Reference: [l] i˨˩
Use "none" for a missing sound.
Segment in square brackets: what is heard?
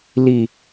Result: l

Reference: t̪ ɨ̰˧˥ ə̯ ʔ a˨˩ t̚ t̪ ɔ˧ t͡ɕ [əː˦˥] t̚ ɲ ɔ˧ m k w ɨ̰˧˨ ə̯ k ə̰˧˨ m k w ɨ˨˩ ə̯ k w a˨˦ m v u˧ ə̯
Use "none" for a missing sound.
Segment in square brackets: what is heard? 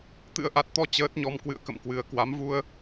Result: əː˦˥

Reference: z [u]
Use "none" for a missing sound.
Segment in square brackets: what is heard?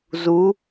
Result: u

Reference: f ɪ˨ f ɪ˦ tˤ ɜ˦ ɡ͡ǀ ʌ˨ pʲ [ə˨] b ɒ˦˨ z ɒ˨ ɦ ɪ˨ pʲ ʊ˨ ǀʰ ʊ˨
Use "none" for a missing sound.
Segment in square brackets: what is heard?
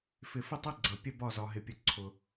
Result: ə˦˨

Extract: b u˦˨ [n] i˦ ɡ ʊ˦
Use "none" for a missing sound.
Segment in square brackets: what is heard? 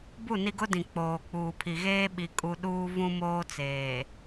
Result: n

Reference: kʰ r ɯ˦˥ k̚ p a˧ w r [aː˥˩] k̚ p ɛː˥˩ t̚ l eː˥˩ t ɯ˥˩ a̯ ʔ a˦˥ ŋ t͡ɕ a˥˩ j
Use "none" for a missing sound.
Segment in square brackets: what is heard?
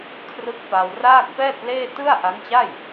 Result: aː˥˩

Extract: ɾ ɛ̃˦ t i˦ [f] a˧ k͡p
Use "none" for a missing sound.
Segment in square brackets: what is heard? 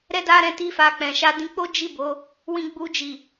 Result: f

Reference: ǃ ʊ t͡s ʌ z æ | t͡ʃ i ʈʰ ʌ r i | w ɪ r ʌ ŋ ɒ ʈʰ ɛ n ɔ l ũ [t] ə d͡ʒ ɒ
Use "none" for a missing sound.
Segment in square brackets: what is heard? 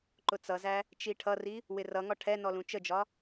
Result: t͡ʃ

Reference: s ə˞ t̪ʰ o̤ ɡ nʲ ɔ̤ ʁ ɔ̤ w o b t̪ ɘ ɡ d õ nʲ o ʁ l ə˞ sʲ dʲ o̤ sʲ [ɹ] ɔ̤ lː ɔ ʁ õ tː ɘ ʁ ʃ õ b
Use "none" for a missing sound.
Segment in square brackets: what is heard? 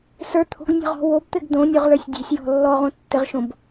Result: j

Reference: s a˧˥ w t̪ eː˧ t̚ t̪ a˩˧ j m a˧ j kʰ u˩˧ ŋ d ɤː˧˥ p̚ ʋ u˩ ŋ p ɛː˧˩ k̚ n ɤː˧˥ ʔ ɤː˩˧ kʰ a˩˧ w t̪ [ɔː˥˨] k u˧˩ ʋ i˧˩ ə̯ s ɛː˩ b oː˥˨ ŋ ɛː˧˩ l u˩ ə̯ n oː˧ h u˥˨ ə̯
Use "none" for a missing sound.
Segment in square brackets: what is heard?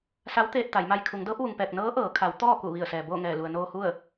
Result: ɔː˥˨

